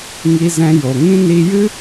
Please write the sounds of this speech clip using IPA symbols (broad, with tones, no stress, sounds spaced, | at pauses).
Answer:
ŋ i˧ z ɛ̃˧ j o˨ ŋ ĩ˦ n i˧ j ɨ˦